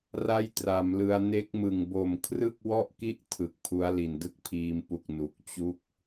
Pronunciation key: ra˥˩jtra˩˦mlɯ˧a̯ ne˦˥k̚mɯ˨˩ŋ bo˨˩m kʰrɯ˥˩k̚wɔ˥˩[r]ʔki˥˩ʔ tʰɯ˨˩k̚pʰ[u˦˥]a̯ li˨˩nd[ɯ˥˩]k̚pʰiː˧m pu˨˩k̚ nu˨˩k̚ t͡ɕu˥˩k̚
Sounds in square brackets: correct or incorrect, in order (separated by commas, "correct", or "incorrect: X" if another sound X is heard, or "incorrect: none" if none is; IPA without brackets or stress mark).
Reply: incorrect: none, correct, incorrect: ɯ˦˥